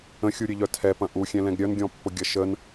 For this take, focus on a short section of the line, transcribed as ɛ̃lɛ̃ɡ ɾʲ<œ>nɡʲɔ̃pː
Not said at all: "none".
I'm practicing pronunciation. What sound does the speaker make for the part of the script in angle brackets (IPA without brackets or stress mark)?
œ